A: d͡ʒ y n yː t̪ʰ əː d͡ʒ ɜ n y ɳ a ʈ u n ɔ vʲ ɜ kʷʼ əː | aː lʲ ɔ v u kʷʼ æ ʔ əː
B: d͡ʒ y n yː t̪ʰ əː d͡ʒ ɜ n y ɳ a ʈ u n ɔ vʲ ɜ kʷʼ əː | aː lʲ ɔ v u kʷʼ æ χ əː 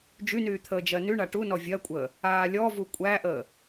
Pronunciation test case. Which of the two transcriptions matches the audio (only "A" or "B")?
A